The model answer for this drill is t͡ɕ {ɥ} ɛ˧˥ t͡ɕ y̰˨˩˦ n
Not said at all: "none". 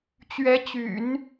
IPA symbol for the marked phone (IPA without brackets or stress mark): ɥ